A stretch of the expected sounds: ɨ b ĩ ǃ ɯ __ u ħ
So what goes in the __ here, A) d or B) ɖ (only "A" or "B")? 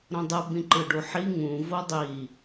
B